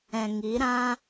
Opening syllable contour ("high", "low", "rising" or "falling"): low